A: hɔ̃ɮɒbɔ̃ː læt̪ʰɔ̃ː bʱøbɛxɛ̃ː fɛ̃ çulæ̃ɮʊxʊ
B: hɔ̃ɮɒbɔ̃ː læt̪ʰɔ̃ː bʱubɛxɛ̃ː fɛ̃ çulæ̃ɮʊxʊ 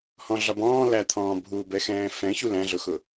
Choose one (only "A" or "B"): B